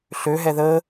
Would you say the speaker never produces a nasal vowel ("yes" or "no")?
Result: yes